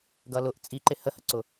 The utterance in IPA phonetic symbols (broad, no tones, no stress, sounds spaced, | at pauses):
ɡ ʌ l ʊ ʔ t͡sʼ i ǃ ɪ h ə h ə ǀ ʊ